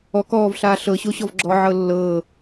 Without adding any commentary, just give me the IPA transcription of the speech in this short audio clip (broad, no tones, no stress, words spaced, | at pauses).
ɔk ɔːvɬaː ɬɤɕoɕɔv ɡ͡ǁɔʕɤ lːɤː